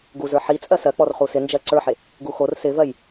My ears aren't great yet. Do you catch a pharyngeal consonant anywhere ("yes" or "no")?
yes